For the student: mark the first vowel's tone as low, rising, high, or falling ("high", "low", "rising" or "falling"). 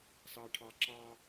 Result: low